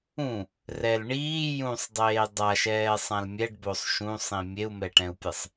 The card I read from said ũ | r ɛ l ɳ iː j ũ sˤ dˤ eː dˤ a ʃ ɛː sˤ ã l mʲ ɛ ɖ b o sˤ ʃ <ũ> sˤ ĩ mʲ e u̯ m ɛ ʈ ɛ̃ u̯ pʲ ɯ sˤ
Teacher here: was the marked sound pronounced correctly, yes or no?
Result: yes